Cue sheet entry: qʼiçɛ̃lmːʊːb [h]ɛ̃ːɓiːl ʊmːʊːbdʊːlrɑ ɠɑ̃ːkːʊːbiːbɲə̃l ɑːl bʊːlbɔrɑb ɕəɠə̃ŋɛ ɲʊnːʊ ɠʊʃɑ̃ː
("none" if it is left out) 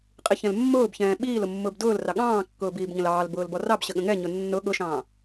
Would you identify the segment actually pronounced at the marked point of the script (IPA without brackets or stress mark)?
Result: ç